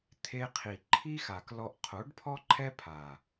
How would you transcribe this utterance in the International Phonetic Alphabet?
t̪ʰe˧qʰi˨ ǃʰi˦ xa˨klɔ˧ʔ qʰo˨˦ɖpʰɔ˦ǃʰɛ˦ pʰa˨

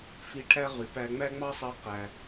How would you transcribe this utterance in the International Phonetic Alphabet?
fi˧˥ʈʰæ˥ʁy˩˧pæ˧ ŋ͡mæ˥ŋ͡mɑ˥sˤɑ˧˥ qæ˩

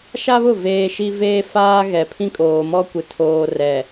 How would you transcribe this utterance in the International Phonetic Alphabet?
ʃa˦βʊ˦˨ veː˦ʃi˦ veː˦faː˦ ɣɛ˨ pʰĩ˦kʼoː˨mɔ˦kʷɪ˨ tʰoː˨ rɛ˨

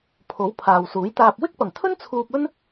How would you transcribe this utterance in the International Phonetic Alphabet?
pʰo˨˥wpʰaː˨wsuː˨˥jt̪aː˧p̚ wɪ˥k̚pɐ˨˩ŋt̪ʰɵ˥n t͡sʰuː˧p̚ɵ˥n

